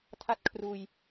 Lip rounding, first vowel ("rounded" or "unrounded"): unrounded